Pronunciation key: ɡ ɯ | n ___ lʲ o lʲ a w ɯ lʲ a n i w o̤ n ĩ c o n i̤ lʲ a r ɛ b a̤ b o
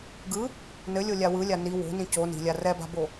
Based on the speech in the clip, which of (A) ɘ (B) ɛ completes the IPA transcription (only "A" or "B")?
A